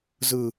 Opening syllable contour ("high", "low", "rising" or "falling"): high